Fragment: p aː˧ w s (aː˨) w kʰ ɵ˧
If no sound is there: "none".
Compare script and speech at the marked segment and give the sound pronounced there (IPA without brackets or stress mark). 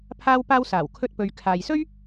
aː˨˩